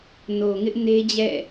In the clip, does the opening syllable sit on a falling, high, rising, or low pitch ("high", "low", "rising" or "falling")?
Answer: low